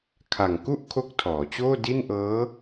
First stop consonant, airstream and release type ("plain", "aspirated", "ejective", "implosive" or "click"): aspirated